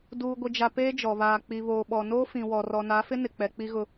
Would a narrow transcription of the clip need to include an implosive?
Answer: yes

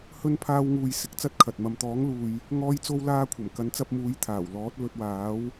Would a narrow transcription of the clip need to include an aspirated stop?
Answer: yes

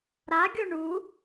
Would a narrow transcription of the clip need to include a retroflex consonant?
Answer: yes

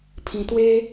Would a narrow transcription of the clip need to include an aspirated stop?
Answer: yes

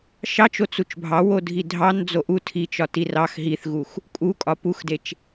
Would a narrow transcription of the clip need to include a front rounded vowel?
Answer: no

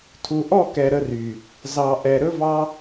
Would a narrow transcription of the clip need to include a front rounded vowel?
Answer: yes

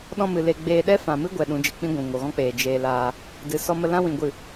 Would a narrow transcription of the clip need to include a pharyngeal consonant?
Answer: no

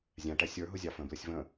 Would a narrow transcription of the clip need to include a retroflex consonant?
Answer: yes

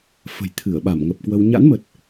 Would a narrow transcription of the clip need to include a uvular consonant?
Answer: no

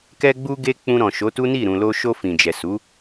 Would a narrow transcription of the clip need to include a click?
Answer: no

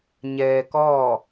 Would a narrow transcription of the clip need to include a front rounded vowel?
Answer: no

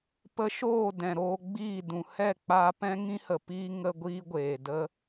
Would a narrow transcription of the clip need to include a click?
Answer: no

